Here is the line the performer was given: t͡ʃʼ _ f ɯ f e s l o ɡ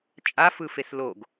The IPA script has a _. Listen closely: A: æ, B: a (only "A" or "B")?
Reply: B